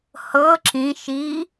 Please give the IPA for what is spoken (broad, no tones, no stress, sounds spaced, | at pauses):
h ɤ ǁ ĩ ʃ i